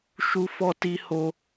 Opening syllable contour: high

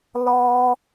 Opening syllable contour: high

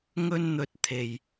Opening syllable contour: high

